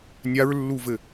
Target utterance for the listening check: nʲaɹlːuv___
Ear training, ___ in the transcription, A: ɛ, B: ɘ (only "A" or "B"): B